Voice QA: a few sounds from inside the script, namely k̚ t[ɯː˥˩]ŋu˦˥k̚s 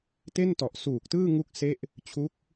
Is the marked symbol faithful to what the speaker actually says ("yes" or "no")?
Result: yes